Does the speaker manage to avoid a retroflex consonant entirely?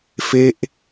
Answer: yes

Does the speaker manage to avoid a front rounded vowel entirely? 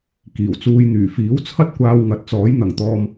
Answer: no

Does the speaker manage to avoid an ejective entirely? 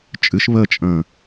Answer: no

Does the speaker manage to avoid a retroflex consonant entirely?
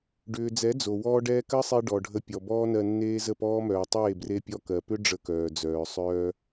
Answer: no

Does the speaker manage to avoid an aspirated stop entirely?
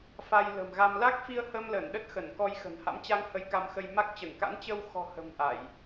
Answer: yes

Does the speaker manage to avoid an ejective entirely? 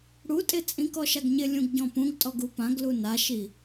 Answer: no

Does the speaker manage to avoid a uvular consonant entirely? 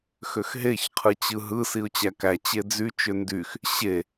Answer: no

